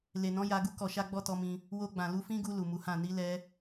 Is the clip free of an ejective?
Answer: yes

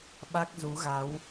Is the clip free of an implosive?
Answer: no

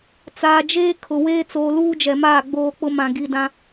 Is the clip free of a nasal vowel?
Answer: no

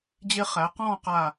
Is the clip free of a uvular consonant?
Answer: no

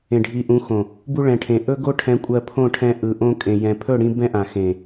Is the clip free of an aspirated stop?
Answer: no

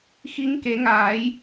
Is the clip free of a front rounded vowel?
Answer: yes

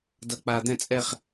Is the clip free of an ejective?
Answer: no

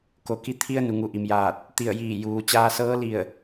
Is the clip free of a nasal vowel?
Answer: yes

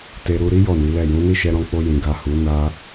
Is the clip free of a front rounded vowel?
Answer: yes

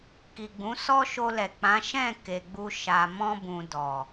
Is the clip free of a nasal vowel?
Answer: no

